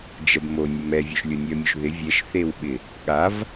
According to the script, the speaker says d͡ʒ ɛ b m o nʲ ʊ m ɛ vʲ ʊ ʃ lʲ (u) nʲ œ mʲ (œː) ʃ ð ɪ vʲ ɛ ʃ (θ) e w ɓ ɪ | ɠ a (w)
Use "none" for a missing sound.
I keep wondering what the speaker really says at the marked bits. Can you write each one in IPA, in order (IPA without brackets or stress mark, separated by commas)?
ʊ, œ, θ, v